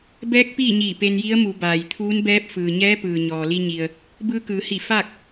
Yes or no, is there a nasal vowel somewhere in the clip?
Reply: no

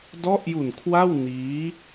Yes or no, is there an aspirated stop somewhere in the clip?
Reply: yes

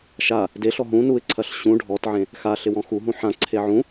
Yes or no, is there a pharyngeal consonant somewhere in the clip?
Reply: yes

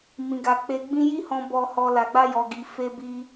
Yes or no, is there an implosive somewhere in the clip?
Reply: no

